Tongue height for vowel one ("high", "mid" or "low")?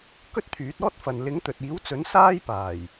mid